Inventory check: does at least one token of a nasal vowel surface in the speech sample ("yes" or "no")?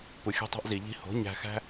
no